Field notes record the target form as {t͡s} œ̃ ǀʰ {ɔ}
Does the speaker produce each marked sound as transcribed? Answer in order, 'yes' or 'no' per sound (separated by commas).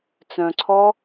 yes, yes